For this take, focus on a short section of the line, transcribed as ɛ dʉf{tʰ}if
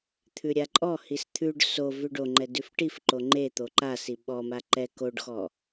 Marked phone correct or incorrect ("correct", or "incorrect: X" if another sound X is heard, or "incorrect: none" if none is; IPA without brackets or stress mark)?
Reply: incorrect: ʈ